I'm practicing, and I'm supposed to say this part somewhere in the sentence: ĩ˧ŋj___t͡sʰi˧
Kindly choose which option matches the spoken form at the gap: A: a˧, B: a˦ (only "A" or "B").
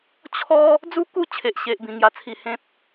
A